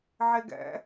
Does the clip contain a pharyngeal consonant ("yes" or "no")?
yes